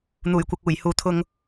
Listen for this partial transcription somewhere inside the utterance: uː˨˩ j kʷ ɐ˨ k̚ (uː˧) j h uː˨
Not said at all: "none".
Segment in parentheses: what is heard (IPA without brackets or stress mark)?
uː˨˩